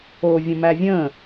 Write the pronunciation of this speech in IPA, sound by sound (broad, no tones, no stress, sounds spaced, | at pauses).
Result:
o vʲ ə̃ m æ vʲ ə̃